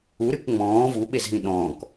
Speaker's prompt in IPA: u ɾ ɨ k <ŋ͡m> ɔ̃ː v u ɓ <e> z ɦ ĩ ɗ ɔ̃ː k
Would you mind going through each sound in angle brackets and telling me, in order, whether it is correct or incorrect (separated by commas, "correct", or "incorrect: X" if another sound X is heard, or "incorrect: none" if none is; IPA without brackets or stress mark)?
correct, correct